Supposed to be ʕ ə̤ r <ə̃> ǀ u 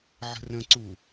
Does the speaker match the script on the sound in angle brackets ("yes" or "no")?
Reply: yes